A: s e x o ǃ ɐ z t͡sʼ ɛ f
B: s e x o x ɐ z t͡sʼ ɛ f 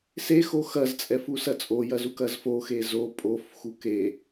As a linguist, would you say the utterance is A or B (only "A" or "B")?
B